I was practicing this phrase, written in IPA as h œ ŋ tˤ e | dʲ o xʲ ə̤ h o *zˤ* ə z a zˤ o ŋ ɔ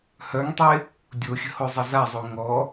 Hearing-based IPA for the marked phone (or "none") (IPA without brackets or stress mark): zˤ